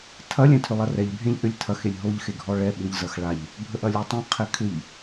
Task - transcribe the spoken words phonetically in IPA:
tʰ ɐ lʲ ɛ̃ tʰ ʏ lˠ ɐ r ɛ ʎ bʱ ẽ ʎ ʔ ʏ lʲ tʰ ɐ x e lʲ ɦ o ʎ x e ɡʱ ɔ ɭ ɛ ɓ ʏ ʎ z ɐ x ɭ a ʎ | bʱ ə ʔ ɐ lʲ o tˤ ẽ qʰ ɛ kʰ ʏ ʎ

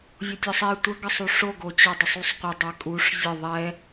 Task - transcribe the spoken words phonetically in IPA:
vʲ o tʲ ɔ sˤ e tʷ ə ɡ ə sˤ u ʂ o ɡ o t͡ɕ ɔ dˤ ʏ sˤ u sˤ qʷ ə dˤ ɛ kʼ u ʂ zʲ ə ðˤ ɛ

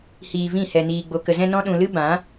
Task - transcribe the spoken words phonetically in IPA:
h iː˧ v ĩ˦˨ h ɛ˧ n iː˧ ɡ͡b o˧ k ə˨ z ɛ̃˧ n ɔ̃˦ ɗ ũ˧ l ɨ˦ b ã˨˦

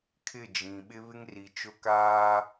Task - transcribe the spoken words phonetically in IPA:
kʰ ɪ˦˨ d͡ʒ ĩ˨ ɓ ɪ˦ β ɪ˦ ŋ r i˨ t͡ʃ ʊ˦ k aː˦

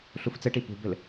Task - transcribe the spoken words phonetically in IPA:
ɬ u f t͡s ɘ ʈ i p ṳ b ɘ l

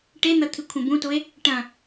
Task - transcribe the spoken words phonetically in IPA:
ʈ e n̪ ɐ t̪ʰ ɨ kʷʰ ẽ b ũ t o e̯ | ʈ ɐ̃

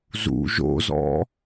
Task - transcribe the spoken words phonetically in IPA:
z ṵ ʒ o̰ z ɔ̰

